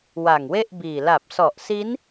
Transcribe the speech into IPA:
wa˨˩ŋwe˥˩ʔbiː˨˩ la˨˩p̚sɔ˨˩ʔsi˦˥n

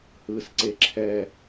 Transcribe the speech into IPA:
hɯsǀe ǁʰɛ

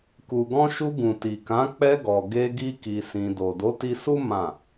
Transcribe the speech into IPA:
ku˨ɡɔ̃˧ʃu˧ ɡũ˨ti˨kã˨˦ k͡pɛ˧ɡɔ˨ ɡe˧ ɡi˦ki˧sĩ˧ do˨do˨˦ti˧su˦ mã˦˨

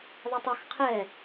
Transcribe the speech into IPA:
ðˤɜtˤʌx qʰɛ

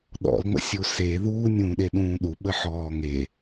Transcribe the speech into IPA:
ɗɔ̰lŋ͡mə̰ sʲuse ðuːnʲũːɗeɗũː ɗu ɓəħɔːŋe

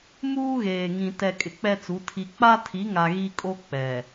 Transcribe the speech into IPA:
muː˦ɣeː˨ ŋĩ˨tɛ˨ kʼɪ˨k͡pɛ˦t͡su˨˦ tʰi˨k͡pa˦tʰi˨˦ŋa˨ ɣi˦kʼo˦ k͡pɛ˨

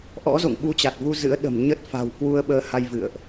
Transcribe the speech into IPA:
ʔɔ̰˧˥zo̰˧˨ŋ ɓu˧t͡ɕa˨˩t̚vu˧ zɨ̰˧˥ə̯ɗə̤˨˩m ɲə˦˥t̚ fa̤˨˩wkwu˧ə̯ ɓəː˧ha˧j vɨ̰˧˨ə̯ʔ

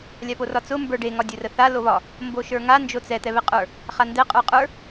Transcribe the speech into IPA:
lʲaporɒt͡sʊ mbə˞ɖe ŋɒdʲʊrəθa loβɒ | mboʃə˞ŋa nd͡ʒot͡sɛ t̪ɛβɛqʼə˞ | χandɛ qʼə˞qʼə˞

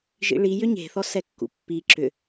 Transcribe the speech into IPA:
ʒḭɭijʏ ɲe̤θɔ sɛkːṵpːi ǁʏ

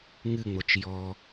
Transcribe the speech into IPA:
ŋɨŋ͡mot͡ʃ jɔ

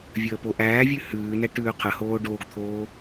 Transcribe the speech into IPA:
vʲəːpoʔæːvʲʉ hʉːnɛ ʈʉːqʰəhoː ɖoːɡt̪ʰoː

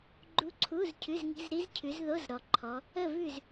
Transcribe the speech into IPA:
ɡ͡ǃu˦˥ǀʰu˧˥˧zcʰʉ˧˥˧z ŋi̤˧˥˧zɾi˦˥z cʰʉ˨˦zðo˧˥˧zɾɔ˨ǃʰɔ˨˦ | ə˥˨vʉ˥˨z

